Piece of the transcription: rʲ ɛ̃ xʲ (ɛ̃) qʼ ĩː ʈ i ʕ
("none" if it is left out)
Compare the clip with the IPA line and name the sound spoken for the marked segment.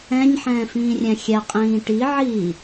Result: ɛ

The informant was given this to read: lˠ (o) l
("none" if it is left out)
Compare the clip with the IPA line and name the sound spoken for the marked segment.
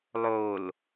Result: o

